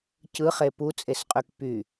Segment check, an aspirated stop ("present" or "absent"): absent